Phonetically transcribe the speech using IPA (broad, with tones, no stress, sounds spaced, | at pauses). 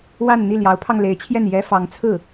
w a˥˧ n n̪ i˥˩ l j ɑ˧˥ ʊ̯ pʰ ɑ˧ ŋ l e˧˥ ɪ̯ t͡ɕʰ j ɛ˥˩ n j ɛ˥ f ɑ˧˥ ŋ t͡sʰ ɹ̩˥˩